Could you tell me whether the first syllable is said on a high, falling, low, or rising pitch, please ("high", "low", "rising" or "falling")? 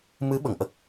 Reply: rising